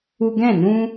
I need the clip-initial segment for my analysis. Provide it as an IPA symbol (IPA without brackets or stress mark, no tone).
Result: u